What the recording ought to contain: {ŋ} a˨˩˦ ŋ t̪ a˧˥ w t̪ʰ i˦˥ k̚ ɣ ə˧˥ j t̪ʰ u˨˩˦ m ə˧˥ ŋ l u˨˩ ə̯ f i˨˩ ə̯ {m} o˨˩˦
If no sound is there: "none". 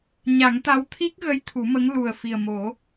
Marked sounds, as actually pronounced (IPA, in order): ɲ, m

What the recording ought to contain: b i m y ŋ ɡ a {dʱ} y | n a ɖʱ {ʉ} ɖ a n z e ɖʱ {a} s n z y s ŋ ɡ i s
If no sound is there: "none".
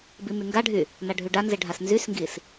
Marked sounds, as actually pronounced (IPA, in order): ɖʱ, ʉ, a

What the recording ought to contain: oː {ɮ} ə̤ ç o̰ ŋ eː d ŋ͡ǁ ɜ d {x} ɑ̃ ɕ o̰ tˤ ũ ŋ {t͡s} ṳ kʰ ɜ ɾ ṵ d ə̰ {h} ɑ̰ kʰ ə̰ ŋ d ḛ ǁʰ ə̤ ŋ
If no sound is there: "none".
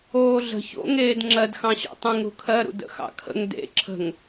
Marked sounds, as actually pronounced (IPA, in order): ɮ, x, ɾ, x

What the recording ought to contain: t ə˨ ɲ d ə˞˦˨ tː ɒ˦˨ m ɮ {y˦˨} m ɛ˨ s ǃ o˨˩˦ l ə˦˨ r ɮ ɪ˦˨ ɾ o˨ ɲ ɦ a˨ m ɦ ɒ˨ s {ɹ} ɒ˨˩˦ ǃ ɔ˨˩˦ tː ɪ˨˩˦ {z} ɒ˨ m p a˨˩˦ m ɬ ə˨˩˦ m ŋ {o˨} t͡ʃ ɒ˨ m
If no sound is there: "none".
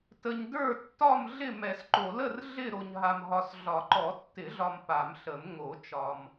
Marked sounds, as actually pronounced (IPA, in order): ɪ˦˨, ɮ, ɮ, o˨˩˦

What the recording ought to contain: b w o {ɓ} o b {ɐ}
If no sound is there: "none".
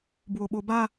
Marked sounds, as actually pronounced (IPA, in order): ɓ, a

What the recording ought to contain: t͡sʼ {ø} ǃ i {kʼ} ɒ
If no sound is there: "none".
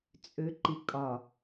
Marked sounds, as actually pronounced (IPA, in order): ø, kʼ

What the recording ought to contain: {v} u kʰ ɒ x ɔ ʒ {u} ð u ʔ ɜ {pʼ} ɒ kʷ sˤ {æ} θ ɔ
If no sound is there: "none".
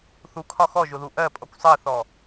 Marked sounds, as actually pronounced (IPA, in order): θ, ʊ, pʼ, ɜ

